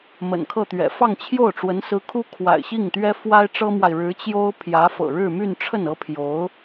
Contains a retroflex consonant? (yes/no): yes